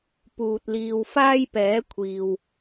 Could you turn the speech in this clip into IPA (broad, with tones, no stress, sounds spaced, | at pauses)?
p uː˨ t̚ l iː˧ w f aː˥ j p ɛː˨˥ kʷʰ iː˨ w